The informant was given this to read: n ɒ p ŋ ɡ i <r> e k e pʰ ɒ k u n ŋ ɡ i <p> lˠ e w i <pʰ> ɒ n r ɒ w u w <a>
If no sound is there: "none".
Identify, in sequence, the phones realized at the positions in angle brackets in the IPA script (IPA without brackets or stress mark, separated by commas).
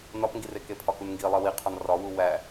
r, none, qʰ, æ